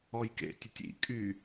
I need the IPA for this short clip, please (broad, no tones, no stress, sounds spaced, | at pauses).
ɔ j k ḛ tʲ ʊ tʲ ḭ kʼ y